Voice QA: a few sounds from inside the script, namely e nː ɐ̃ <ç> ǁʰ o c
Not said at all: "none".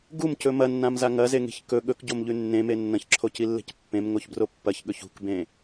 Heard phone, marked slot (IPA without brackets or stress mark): ç